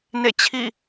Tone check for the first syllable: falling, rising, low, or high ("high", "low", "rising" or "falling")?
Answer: falling